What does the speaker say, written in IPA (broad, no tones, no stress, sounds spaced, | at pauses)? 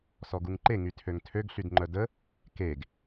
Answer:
s ɔ ɡ u ŋ ǃ e ŋ y tʰ ø ŋ tʰ ø ɡ ɬ y d ŋ͡ǃ œ d ə | k e ɡ